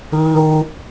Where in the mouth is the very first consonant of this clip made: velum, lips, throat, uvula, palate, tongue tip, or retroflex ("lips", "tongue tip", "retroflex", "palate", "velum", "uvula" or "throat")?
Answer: tongue tip